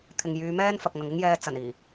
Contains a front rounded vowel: yes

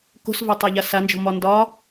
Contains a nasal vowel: no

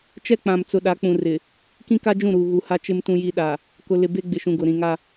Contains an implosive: yes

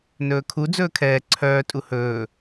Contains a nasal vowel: no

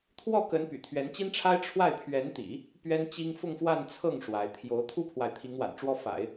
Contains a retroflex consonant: yes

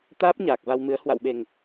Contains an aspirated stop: no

